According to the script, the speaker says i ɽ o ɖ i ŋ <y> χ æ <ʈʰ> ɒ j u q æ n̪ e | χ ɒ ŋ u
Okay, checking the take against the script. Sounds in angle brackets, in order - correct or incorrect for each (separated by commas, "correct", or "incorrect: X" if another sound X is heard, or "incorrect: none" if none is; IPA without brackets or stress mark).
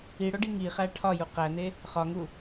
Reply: incorrect: i, correct